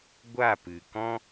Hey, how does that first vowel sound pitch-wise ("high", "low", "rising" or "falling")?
falling